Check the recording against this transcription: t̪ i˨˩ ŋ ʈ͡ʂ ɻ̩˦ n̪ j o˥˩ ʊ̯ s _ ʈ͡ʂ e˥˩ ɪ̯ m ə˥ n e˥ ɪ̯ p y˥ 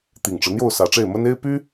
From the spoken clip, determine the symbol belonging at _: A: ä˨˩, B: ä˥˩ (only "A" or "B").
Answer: A